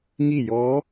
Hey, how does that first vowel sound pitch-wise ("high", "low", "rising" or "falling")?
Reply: falling